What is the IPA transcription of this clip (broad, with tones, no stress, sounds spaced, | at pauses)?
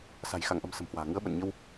s a̤˨˩ j x a˧˩ ŋ ʔ ə̤˨˩ m s ə̤˨˩ m h w a̤ː˨˩ ŋ ɨ˨˦ ə̯ ɓ ə̰˧˨ n ɲ ə˧ w